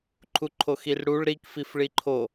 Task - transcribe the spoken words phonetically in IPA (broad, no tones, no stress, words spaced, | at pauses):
ǃʰuǃʰoxirɽuɭ ɾikfifɭi ǃʰo